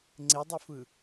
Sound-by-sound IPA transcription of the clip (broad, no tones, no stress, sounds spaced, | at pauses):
ŋ͡ǀ e dˤ e f ɯ